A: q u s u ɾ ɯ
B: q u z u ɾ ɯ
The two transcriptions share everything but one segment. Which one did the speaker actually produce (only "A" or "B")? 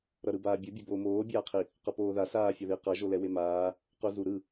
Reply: B